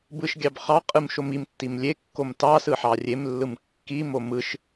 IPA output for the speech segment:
b ɯ ʃ ɡʲ ɑ b χ ɑ qʼ ɯ m ʃ o m i m tː i m lʲ e kː o m t ɑ s ɯ ħ ɑ rʲ e m lː ɯ m kː i m o m ɯ ʃ

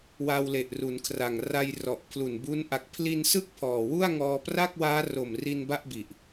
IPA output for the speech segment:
w a˧ w l e˨˩ ʔ r u˩˦ n kʰ r a˨˩ ŋ r a˧ j r ɔ˨˩ ʔ pʰ l u˨˩ n b u˦˥ n ʔ a˨˩ k̚ pʰ l i˧ n s ɯ˦˥ k̚ pʰ ɔː˨˩ w u˥˩ a̯ ŋ ɔː˧ p r a˥˩ k̚ w aː˦˥ r o˨˩ m r i˧ n b a˥˩ ʔ b i˨˩ ʔ

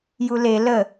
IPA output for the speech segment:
j u l e l ə

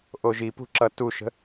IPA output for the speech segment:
ʔ o ʒ i p ṳ ǁ ʌ t u ʃ ə̤

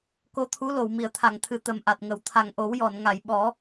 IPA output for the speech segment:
k o˧ t̪ʰ u˧˥ l o˨˩˨ w m i˨˩˨ ə̯ t̪ʰ a˨˩˨ ŋ t̪ʰ ɨ˨˩ t̪ ə˨˩ m ʔ a˨˩ t̚ ŋ ə˨˩ w t̪ʰ a˨˩ ŋ ʔ o˨˩˦ w j ɔ˨˩˨ n ŋ a˨˩˨ j ɓ ɔ˨˩˦

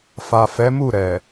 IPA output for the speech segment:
f a˨ f ɛ˨˦ m u˦˨ ɾ ɛ˨

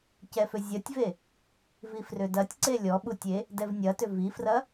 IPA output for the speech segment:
c ɛ f ʏ zʲ ɐ tʲ v e | v i f r ʏ d ɐ tʲ ǀ e lʲ ɔ ɓ u tʲ e | d ɛ v nʲ ɐ t ʏ v i f r ɐ

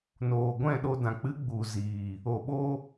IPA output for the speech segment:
n oː˨ ɡʷ ɛ̃˦˨ ɗ o˧ d ã˨ k͡p ɨ˨˦ ɡ͡b u˨ z iː˨ | o˨ ɓ o˧

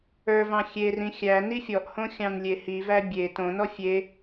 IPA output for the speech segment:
ə˞ v ɑ̃ xʲ e r ĩ xʲ æ n i fʲ ɔ ʔ h õ xʲ ɑ̃ n lʲ e h i v æ bʲ e t õ n ɔ fʲ e

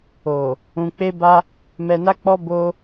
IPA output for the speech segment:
o˨ | ũ˧ k͡p e˧ b a˧ | m ɛ˧ n a˦ k͡p ɔ˦ b o˦

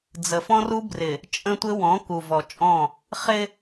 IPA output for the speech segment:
d͡z ə˨ f ɔ̃˦ r u˦ b r ɪ˨ | t͡ʃʼ ə̃˦ tʷ ɪ˦ w ɔ̃˨˦ k u˨ v ɔ˨ t͡ʃʼ ɔ̃˦˨ | χ ɪ˦

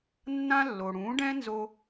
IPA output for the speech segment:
nː ã˥ lː o˩ ɽ ũ˩˥ ɖ ɛ̃˥ n z o˧

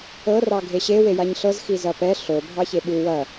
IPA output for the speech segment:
ɤ r ɑ ɡʱ e ɕ e w e j a ɲ ɬ ɤ z x i z ɐ p ɛ ɬ o bʱ ɑ ç e ɓ u w ɐ

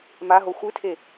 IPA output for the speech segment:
m a ɦ o xʷ ɨ tʰ e

